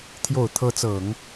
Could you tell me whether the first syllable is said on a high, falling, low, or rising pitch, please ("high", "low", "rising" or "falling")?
low